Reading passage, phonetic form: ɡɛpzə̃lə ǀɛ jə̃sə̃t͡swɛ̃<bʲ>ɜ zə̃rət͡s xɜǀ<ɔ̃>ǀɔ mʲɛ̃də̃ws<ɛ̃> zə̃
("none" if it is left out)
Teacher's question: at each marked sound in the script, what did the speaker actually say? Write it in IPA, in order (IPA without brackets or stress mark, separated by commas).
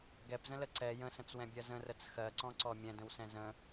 bʲ, ɔ̃, ɛ̃